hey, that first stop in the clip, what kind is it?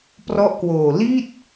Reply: plain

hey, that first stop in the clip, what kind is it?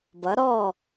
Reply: plain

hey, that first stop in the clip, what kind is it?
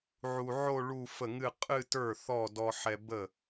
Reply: ejective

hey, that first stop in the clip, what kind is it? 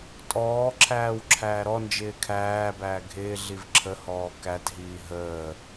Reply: ejective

